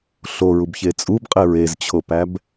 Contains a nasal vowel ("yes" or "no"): no